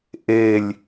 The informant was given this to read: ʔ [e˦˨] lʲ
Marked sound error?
no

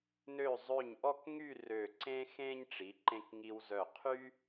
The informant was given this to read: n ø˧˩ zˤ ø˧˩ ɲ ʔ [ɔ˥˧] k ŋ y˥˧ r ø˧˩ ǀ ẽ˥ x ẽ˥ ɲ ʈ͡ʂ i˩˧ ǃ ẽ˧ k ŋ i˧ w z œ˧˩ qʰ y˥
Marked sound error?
no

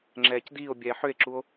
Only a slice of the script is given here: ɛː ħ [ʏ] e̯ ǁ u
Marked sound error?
no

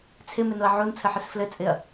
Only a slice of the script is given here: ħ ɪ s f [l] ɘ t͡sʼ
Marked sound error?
no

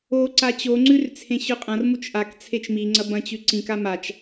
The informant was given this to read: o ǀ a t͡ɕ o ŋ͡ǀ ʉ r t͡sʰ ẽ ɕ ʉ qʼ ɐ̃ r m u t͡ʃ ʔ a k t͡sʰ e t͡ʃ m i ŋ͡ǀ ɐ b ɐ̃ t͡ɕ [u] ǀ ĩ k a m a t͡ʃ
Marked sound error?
yes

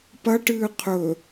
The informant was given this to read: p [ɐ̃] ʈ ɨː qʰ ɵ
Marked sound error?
yes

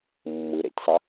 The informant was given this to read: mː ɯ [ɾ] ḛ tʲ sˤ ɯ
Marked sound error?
no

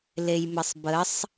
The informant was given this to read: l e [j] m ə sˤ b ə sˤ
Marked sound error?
no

